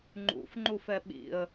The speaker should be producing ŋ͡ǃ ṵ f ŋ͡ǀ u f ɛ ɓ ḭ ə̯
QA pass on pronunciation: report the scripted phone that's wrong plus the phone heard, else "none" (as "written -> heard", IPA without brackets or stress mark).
ŋ͡ǀ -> ŋ͡ǃ